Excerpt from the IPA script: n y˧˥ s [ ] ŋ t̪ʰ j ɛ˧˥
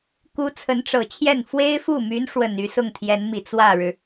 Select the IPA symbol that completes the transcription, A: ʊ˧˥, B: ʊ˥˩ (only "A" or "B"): B